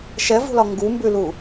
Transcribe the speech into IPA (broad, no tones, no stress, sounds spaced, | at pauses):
ʃ ɛ v ṳ l ɒ ŋ ɡ u m b ʉ l u